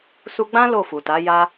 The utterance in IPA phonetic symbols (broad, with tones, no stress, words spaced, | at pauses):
su˧ɡ͡bã˦ lo˦˨fu˨ta˨˦ ja˧